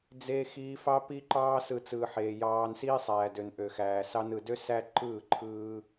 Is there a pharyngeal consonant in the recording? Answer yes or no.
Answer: yes